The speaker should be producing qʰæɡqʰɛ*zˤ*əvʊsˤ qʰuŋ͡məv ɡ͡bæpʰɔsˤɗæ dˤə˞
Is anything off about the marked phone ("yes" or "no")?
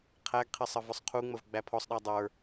yes